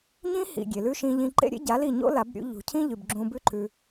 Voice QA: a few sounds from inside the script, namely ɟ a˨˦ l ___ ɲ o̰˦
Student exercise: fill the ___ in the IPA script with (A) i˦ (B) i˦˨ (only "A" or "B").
B